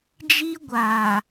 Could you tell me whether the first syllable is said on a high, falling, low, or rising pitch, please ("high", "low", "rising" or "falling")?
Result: high